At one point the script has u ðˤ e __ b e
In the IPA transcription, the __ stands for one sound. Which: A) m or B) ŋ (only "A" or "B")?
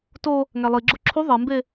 A